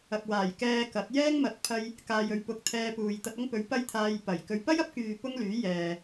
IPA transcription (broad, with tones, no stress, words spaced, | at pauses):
ɐ˨k̚waː˨˩jkɛː˧kɐ˨˥t̚ jɛː˥ŋmɐ˨˥t̚pʰɐ˧j | kaː˨jɵ˨ɥpʊ˨k̚ t̪ʰɛː˧puː˨j t̪ɐ˧t̚ɐ˥ŋpɵ˨˥ɥ pɐ˥jt̪ʰaː˧j pɐ˨˩jkɵ˧ɥ pɐ˥jɐ˨˥p̚kyː˨ pʊ˥ŋlyː˨˥jɛː˨